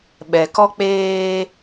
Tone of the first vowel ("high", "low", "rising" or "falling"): low